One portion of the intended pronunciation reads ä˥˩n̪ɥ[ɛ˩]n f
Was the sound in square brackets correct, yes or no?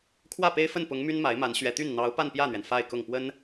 yes